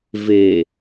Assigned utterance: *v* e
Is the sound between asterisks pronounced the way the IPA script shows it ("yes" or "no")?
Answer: yes